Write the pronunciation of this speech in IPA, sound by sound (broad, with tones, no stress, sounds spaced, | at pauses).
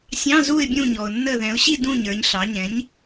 sʲ ɑ̃˧˥˧ z u˦˨ ɪ̯ bʲ ũ˦˨ ɲ ɔ˩ ʊ̯ nː ə˦˨ ð ɛ̃˩˧ ʊ̯ ɕ i˦˨ d ũ˦˨ ɲ ə˞˩˧ ɲ ɬ ɑ˩˧ ɲ ɛ̃˩˥ ɲ